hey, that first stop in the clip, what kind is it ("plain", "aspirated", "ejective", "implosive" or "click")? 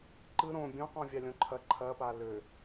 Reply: click